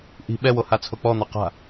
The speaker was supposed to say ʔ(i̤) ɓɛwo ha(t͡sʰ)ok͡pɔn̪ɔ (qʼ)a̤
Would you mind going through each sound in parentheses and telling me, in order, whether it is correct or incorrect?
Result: correct, correct, incorrect: q

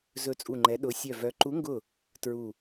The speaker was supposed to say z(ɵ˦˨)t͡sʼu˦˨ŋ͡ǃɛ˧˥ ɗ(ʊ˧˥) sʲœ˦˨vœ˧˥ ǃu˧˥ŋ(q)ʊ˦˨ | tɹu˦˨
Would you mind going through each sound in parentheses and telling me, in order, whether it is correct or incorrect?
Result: correct, correct, incorrect: ɡ

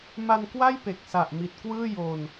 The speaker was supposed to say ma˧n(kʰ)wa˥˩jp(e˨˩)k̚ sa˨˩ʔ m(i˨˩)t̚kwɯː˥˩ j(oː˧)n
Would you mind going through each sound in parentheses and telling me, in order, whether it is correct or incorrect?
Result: incorrect: k, correct, correct, correct

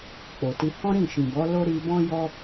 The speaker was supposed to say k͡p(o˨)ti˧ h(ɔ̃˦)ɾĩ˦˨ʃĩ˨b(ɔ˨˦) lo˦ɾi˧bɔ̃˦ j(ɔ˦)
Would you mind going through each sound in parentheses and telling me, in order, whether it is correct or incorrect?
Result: correct, correct, correct, correct

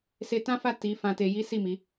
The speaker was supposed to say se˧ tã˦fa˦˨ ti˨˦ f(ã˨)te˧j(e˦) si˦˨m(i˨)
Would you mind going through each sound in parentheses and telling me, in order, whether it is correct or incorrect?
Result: incorrect: ã˧, incorrect: i˦, incorrect: i˨˦

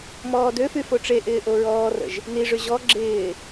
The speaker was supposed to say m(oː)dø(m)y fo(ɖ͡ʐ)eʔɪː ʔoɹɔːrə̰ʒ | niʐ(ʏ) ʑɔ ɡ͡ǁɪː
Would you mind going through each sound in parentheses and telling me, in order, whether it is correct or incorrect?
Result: incorrect: ɔː, incorrect: f, incorrect: ʈ͡ʂ, correct

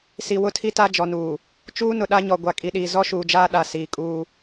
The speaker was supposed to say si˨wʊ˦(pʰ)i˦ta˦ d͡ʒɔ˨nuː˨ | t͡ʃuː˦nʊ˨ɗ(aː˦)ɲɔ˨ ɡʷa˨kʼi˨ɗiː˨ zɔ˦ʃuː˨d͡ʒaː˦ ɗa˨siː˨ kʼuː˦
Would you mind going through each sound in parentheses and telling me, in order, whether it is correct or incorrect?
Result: incorrect: tʰ, incorrect: a˦

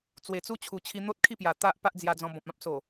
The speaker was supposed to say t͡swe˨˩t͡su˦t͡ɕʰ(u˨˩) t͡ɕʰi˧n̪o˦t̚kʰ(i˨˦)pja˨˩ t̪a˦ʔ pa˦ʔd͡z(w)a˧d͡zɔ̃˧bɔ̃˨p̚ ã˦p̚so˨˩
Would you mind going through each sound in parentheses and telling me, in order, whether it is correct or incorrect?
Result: correct, incorrect: i˥˧, incorrect: j

